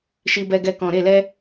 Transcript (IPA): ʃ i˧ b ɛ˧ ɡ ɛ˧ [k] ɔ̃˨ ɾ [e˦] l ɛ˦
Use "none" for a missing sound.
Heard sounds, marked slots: k, e˦˨

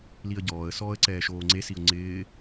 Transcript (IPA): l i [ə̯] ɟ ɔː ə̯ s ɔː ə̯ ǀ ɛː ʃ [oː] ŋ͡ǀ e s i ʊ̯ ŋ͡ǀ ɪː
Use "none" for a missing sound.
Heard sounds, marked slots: ə̯, oː

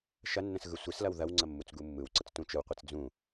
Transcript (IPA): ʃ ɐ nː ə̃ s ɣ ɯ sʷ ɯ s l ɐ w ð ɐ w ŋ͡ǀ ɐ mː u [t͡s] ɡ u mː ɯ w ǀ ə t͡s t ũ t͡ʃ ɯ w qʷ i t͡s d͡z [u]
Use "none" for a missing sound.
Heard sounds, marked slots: t͡s, ũ

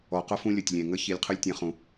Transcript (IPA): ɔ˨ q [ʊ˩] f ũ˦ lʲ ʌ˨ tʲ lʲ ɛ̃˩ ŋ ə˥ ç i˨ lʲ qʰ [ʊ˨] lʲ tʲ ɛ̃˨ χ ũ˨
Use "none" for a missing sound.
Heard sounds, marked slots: ʊ˥, ʊ˦

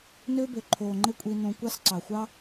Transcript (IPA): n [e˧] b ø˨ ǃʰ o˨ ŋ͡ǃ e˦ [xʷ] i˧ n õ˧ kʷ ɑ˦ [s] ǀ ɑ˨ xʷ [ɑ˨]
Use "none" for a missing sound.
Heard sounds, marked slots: ø˧, kʷʼ, s, ɑ˦

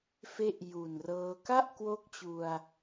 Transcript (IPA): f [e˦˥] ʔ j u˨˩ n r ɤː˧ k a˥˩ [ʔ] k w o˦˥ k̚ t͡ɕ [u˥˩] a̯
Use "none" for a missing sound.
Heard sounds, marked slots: e˦˥, ʔ, u˧

